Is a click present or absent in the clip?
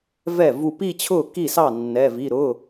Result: absent